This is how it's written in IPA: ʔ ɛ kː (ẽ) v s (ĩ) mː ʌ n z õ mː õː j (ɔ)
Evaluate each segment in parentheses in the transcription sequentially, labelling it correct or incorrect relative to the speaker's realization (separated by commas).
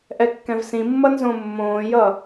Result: incorrect, correct, incorrect